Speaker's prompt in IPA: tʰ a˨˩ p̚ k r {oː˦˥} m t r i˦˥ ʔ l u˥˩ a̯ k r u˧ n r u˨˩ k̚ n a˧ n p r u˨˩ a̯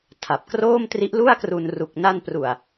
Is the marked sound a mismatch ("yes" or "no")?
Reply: yes